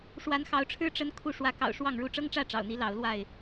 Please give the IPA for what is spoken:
ʂ w a˨˦ n x ɑ˨˦ ʊ̯ ʈ͡ʂʰ ɻ̩˦ ʈ͡ʂ ə˦ n kʰ u˥˨ ʂ w ä˨˦ k ɑ̰˨˩ ʊ̯ ʂ w ɑ˥˨ ŋ ɻ u˦ ʈ͡ʂ ɤ˦ ŋ ʈ͡ʂ ä˥˨ ʈ͡ʂ ɑ̰˨˩ ʊ̯ n̪ i˨˦ l ɑ˨˦ ʊ̯ l w a˥˨ ɪ̯

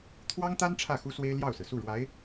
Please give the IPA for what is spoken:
t̪ʰ w ɑ˥ ŋ t̪ a˥ n ʈ͡ʂʰ ä˥˩ x u˥ s w e˥ ɪ̯ l j ɑ˥˩ ʊ̯ s ɹ̩˩ s u˥˩ ɻ w a˧˥ ɪ̯

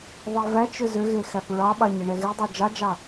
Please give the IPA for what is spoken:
ðˤ e v æ t͡ʃ ʏ z ʏ ɣ e x æ p ɹ ɑ ɓ ɑ ɲ e ɳ ɛ ɣ e dˤ ɑ d͡ʒ ɑ d͡ʒ ɑ

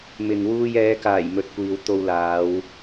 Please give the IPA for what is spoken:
m ɪ˨ ŋ w uː˧ j ɛː˨˧ k aː˨˩ j m ɵ˨ t̚ kʷ iː˨ w t̪ o˧ w l aː˨˧ w

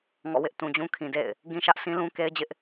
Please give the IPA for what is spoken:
ŋ ɔ̰˦˨ w ɪ˦ ʔ t ũ˨ d͡ʑ ũ˦ kʰ ĩ˨ d ḛ˦˨ ɪ̯ | ɡ ĩ˦ ʃ ä˦ ʔ sʰ ĩ˦ l ũ˦ k e˦ ɪ̯ d͡ʑ ɪ˦ ʔ

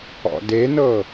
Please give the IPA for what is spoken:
ɔ̰ d e n ɤ

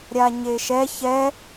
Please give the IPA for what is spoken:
ɾʲ a ɲ e ʃ ɛ ç ɛ

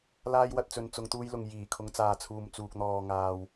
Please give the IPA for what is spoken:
l aː˥ j w ɐ˧ t̚ t͡s ɵ˧ n t͡s ʊ˨˧ ŋ t̪ uː˧ j l ʊ˨ ŋ j iː˨˩ kʰ ʊ˨˧ ŋ t͡s aː˨ t͡sʰ uː˨ m t͡s uː˨ k̚ n̪ ɔː˨ ŋ aː˨ w

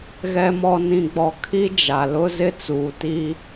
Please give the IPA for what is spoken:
ɣ ɛ˨ m ɔ˨ n ĩ˨ ɡ͡b ɔ˨ kʰ i˦ d͡ʒ a˨ l ʊ˦ z ɪ˦ t͡s uː˨ t iː˦

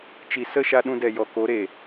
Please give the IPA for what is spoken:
t͡ʃ i˨ s ə˦˨ ʃ a˧ ɗ ũ˧ d ɛ˨ j ɔ˨ k o˨˦ ɾ e˨

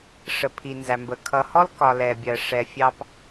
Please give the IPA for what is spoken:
ʂ ə˨ pʰ i˨ n z æ˨ m b ə˨ kʰ ʌ˨ h ɔ˦ l k ɒ˨ l ɛ˨ bʲ ɜ˨ ʂ ɛ˨ fʲ ɑ˨ p

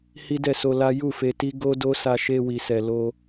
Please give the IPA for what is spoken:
h i˦ d ɛ˦˨ s o˧ l a˦ j u˦˨ f e˧ t i˦ ɡ o˦ d o˦ s a˧ ʃ e˧ w i˨ s ɛ˨ l o˧

